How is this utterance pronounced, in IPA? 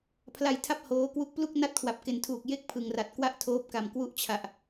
pʰ l a˧ j tʰ a˥˩ p̚ h oː˦˥ k w u˥˩ k̚ p l u˥˩ k̚ n a˥˩ t̚ kʰ w a˨˩ p̚ k e˩˦ n tʰ uː˨˩ k̚ j e˥˩ k̚ pʰ ɯ˨˩ ŋ r a˨˩ t̚ k w a˥˩ ʔ tʰ oː˦˥ p̚ k a˨˩ m k w u˦˥ ʔ t͡ɕʰ a˨˩ ʔ

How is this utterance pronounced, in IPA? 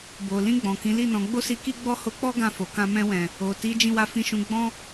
b o˨ l ĩ˧ ɡ͡b ɔ̃˨ k ĩ˨˦ l i˦˨ n ɔ̃˨˦ ɡ͡b o˦ s i˧ k i˦ ɡ͡b ɔ˦ h o˧ k͡p ɔ˦ ɡ ã˧ f o˨ k ã˧ m ɛ̃˦ w ɛ̃˧ | o˨ t i˨˦ d͡ʒ ĩ˧ w a˧ f ĩ˧ ʃ ũ˧ ɡ͡b ɔ̃˦

